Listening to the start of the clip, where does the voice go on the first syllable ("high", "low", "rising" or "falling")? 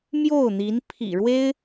falling